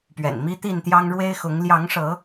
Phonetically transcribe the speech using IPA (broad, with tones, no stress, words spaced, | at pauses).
pɥɛ̰˨˩nmi˦ t̪i˥˨nt̪jɑ˦ŋ ɻwe˦ɪ̯xʊ˨˦ŋ ljɑ˨˦ŋʂɤ˨˦